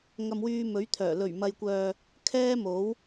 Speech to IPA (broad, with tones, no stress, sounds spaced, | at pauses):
ŋ ɐ˧ m w yː˧ m ɵ˨˥ ɥ t̪ʰ œː˨˩ l ɵ˨˩ ɥ m ɐ˨ j kʷ œː˨ | kʰ ɛː˥ m o˨˥ w